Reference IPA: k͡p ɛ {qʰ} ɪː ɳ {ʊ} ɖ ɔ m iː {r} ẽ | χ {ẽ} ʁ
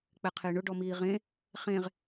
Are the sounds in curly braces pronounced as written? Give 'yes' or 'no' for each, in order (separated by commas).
yes, yes, no, yes